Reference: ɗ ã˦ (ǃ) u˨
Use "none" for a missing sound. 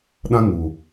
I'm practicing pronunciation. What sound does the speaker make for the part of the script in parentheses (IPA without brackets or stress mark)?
ŋ